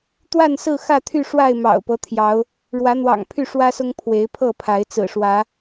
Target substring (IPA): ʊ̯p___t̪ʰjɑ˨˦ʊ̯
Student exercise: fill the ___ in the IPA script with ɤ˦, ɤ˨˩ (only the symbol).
ɤ˦